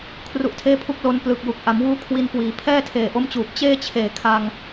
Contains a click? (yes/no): no